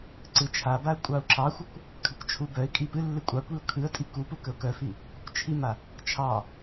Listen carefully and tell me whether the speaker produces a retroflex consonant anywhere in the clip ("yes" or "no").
no